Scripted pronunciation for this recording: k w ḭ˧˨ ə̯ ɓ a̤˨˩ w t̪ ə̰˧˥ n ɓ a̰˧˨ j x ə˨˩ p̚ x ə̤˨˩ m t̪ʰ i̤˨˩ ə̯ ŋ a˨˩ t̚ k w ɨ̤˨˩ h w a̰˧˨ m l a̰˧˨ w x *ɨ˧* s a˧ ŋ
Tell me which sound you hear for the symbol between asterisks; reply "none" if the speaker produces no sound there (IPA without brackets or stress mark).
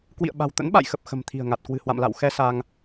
ɛ˧